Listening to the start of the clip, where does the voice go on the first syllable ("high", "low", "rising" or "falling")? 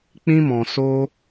high